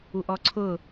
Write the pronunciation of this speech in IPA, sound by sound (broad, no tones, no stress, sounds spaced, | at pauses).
u ʔ ɔ ǀʰ ʊ